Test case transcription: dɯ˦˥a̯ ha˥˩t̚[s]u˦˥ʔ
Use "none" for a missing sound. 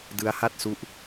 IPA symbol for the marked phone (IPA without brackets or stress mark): s